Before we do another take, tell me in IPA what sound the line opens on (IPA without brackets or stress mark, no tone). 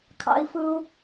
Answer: kʰ